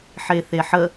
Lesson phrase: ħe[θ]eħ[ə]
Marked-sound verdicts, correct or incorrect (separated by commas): correct, correct